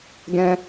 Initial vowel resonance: nasal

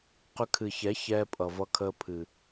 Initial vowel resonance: oral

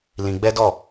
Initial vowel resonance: nasal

